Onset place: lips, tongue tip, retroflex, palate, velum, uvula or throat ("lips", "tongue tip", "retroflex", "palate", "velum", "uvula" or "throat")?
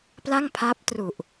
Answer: lips